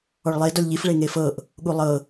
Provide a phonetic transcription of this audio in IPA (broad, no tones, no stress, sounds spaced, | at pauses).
ɔ ɭ lˠ e d ɔ lʲ ʎ i f ɭ e ŋ e f ɤ ʔ | ɠ u lˠ ɤ